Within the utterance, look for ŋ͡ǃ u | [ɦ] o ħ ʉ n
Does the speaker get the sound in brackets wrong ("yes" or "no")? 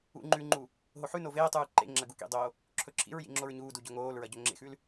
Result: no